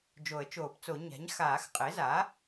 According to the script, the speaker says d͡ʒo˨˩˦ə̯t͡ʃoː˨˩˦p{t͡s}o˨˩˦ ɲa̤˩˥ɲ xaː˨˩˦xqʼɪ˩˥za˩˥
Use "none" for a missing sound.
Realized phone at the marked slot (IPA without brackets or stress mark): t͡s